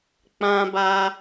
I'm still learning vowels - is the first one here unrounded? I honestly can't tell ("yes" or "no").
yes